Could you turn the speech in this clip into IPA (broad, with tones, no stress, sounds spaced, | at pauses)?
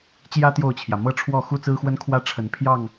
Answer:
t͡ɕ j ä˦ t̪ j o˥˨ ʊ̯ t͡ɕʰ j ä˩ m ɤ˥˨ ʈ͡ʂʰ w ɔ˥˨ x u˦ t͡s ɹ̩˦ x w ə˦ n kʰ w ä˦ ʈ͡ʂʰ ə˨˦ n pʰ j ɑ˥˨ ŋ